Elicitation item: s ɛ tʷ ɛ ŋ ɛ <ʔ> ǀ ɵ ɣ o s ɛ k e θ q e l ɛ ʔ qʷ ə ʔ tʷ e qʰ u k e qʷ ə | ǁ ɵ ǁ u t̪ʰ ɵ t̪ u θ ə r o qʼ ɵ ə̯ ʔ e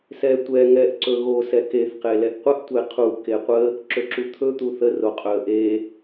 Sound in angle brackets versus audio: correct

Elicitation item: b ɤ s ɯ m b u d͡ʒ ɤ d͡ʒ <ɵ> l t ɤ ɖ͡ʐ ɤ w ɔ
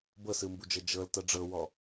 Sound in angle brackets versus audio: incorrect: ɤ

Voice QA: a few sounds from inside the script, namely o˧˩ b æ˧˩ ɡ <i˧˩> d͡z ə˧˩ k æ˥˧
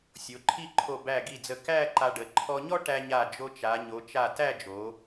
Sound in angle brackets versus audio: correct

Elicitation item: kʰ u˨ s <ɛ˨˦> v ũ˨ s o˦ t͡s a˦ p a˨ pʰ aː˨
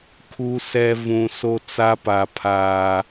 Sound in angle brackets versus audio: incorrect: ɛ˨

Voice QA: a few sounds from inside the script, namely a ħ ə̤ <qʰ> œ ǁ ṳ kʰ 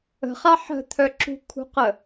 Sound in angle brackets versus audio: incorrect: t̪ʰ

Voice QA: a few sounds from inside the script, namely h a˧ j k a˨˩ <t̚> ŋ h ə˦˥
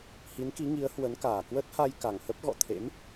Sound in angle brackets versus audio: incorrect: none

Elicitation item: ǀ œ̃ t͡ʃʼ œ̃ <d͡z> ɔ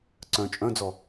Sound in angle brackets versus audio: correct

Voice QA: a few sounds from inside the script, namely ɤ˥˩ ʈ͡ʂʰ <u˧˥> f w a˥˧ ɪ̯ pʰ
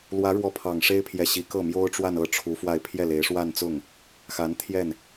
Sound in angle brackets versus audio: correct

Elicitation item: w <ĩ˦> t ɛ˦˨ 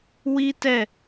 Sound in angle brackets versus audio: incorrect: i˦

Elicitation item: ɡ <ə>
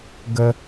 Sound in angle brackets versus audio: correct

